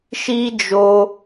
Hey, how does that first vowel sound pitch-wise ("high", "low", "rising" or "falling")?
high